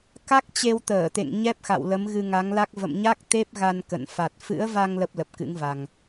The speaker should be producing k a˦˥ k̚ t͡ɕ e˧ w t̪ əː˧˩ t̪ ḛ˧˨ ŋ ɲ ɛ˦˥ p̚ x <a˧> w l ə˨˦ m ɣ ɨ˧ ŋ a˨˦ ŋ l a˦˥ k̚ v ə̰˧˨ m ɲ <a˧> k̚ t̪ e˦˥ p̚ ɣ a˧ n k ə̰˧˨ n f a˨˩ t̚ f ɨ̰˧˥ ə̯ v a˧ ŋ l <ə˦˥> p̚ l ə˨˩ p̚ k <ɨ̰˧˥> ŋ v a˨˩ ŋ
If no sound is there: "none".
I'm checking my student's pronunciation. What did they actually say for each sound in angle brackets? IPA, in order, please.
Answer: a̰˧˨, a˦˥, ə˦˥, ɨ̰˧˥

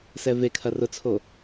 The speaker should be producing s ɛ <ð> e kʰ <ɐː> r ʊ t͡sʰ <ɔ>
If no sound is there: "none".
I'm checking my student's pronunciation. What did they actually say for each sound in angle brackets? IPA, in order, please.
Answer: v, ɐ, o

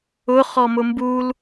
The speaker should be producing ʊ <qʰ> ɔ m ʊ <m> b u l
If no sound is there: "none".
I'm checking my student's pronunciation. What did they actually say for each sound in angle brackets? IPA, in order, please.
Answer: χ, m

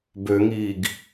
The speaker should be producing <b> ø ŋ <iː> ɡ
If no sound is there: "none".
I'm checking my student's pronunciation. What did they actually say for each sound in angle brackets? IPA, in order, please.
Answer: b, iː

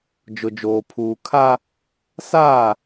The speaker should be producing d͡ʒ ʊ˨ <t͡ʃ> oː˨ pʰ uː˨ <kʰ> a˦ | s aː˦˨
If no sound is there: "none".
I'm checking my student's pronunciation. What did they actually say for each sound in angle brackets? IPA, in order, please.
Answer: d͡ʒ, kʰ

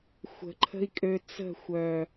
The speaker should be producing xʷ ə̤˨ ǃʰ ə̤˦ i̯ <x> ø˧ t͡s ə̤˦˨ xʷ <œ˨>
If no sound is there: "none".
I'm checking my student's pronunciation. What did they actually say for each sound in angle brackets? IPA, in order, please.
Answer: kʼ, œ˨

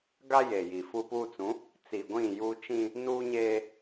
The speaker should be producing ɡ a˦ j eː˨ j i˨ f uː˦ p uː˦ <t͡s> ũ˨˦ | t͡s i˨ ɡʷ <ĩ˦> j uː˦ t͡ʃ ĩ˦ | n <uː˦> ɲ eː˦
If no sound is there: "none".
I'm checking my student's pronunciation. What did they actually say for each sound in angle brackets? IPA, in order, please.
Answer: t͡s, ĩ˦˨, uː˦

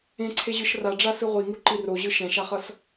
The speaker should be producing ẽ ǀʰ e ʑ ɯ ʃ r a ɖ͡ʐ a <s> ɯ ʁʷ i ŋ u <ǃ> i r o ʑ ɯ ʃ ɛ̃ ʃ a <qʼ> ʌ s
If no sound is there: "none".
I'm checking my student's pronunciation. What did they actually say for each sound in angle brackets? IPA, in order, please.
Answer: s, ǃ, χ

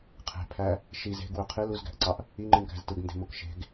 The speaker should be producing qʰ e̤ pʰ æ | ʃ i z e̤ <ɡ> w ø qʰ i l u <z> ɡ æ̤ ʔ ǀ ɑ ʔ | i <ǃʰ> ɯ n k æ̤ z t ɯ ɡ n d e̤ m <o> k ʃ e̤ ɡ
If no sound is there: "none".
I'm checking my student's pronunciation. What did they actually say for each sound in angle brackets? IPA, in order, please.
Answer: ɡ, z, ŋ͡ǃ, o

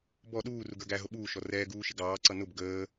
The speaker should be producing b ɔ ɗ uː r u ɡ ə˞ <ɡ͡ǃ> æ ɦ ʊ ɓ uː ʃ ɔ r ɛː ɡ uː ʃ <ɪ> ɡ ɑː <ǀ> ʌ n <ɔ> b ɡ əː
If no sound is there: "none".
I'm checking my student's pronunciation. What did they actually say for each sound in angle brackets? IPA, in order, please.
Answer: ɡ, ɪ, ǀ, ʊ

